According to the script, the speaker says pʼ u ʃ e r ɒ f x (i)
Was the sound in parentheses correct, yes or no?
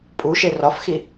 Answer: yes